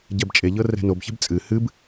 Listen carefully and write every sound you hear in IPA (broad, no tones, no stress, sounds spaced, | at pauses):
ɟ ɛ b t͡ʃʼ e ʎ ɤ r ɛ̤ n o b ç ɛ̤ b t͡sʼ ɨ h ɨ b